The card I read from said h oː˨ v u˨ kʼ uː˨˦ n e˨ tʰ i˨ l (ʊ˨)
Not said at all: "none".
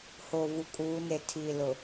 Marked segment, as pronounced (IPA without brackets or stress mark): ʊ˨